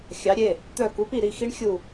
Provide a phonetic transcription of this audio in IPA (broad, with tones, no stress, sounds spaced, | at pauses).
xʲ ɑ˨˥ ɾʲ e˩˧˩ | t̪ œ˦˨ k u˨˥ p i˦˨ ɾ i˦˨ x i˦˥ ɳ xʲ u˦˨